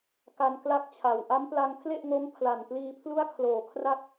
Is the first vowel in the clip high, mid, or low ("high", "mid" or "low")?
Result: low